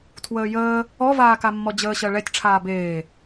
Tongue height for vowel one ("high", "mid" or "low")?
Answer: mid